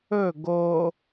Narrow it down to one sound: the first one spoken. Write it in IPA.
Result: ɵ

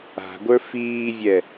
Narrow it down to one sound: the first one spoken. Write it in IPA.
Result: a̤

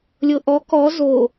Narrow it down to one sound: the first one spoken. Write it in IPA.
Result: lʲ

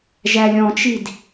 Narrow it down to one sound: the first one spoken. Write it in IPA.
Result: ʒ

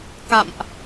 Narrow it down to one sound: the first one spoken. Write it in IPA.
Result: k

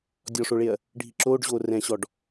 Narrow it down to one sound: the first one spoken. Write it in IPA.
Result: dʲ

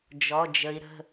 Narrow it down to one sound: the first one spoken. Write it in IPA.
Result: d͡ʒ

